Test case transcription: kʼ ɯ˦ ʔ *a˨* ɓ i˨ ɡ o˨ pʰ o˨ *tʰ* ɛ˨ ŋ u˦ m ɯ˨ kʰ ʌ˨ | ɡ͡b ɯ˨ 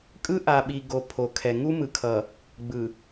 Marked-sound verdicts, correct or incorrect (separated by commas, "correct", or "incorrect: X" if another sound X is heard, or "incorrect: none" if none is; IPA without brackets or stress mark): correct, incorrect: kʰ